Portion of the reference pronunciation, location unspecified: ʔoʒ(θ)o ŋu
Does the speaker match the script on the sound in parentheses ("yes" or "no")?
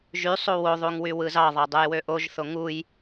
yes